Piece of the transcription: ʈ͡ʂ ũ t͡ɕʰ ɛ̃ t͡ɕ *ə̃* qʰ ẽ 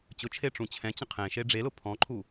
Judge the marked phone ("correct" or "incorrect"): correct